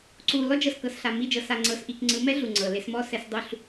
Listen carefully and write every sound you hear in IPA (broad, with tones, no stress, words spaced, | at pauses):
ǀu˨ lɔ˦d͡ʒɤ˨skɤ˨sɬa˨ mi˦˨d͡ʒɤ˨ sa˨ŋ͡ǀɤ˨sʔi˨k ŋ͡ǀɯ˨˦mɛ˦ ɮu˨ŋ͡ǀɤ˨le˦s mɔ˦sɛ˨˦s dˤu˦ɬ